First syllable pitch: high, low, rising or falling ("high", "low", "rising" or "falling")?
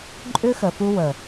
high